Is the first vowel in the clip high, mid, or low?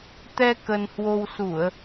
mid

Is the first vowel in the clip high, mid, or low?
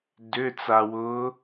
high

